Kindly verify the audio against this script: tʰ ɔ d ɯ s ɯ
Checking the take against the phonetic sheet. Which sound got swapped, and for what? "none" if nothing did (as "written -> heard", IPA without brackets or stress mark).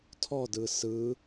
none